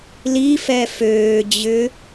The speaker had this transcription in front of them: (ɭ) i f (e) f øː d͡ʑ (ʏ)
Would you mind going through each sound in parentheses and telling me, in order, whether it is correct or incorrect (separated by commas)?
incorrect, incorrect, correct